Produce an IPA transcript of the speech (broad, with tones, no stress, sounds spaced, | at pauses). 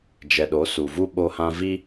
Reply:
d͡ʒ ɛ˨ ɗ o˨˦ s u˨ v u˦ ɓ o˦ h ã˦ v i˦